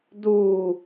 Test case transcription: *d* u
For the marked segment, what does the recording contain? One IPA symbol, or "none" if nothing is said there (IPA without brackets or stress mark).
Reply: d